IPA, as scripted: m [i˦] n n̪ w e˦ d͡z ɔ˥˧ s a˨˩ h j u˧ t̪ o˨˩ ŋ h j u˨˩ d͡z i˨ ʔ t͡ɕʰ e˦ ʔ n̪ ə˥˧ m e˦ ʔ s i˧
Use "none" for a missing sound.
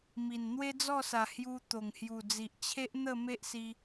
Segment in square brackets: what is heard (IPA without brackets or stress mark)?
i˨˩